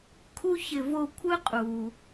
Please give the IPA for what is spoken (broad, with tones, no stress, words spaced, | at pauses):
kʰu˥çɪ˦˨ vo˦˨ kʷʰɯ˥qʼu˨